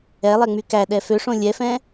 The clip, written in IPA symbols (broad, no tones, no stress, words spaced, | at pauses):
ɛlˠɛŋ͡my kæɗɛ føʂõ lʲɛfɛ̃